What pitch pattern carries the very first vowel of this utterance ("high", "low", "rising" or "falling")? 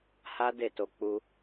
high